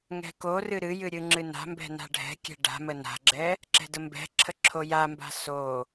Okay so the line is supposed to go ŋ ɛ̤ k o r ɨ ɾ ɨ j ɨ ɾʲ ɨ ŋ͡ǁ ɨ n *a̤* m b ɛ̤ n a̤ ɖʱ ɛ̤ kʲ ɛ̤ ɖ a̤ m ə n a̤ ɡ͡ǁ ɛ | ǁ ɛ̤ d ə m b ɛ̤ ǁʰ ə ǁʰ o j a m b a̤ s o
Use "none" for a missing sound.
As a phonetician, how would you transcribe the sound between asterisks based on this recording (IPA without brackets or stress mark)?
a̤